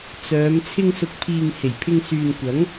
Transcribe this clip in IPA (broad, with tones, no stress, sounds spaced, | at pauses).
t͡s œː˨˧ m t͡sʰ ɪ˧ ŋ s ʊ˨ k̚ pʰ iː˨ ŋ h e˨˩ j pʰ ɪ˧ ŋ s yː˨ n kʷ ɐ˨˥ ŋ